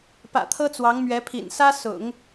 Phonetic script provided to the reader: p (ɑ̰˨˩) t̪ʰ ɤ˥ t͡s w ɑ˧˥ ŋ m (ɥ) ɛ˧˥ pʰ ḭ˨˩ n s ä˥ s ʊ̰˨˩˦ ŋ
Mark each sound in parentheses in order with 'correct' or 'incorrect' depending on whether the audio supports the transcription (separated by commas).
incorrect, correct